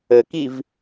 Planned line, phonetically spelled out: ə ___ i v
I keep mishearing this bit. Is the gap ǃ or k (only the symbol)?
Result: k